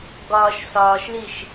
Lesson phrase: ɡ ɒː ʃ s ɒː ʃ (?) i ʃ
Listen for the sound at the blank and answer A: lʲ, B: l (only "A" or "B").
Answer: B